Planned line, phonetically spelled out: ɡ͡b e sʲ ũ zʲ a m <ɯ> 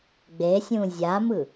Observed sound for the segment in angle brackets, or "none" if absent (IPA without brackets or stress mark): ɯ